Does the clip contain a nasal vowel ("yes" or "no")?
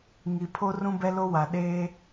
yes